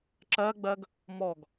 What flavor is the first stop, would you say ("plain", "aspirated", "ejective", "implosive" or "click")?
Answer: click